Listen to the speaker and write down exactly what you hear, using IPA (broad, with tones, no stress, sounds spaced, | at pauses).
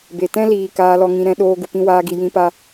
b e˨ t ɛ̃˦ l iː˨ k aː˧ l ɔ˧ ŋ ĩ˧ ɾ ɛ̃˧ ɗ oː˧ ɡ u˨ p ĩ˧ w aː˧ ɡ i˨ j ĩ˧ p a˧